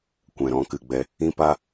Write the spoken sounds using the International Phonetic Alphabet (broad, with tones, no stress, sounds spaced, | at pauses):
kʷ ɛ̃˨ ɾ ɔ̃˧ k ɨ˨ ɡ͡b ɛ˧ | ĩ˦ p a˦